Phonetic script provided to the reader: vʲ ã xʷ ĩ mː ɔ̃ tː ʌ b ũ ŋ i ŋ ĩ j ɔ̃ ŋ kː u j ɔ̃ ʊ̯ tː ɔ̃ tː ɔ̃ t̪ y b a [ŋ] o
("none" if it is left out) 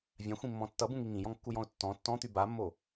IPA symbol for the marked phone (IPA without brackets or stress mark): mː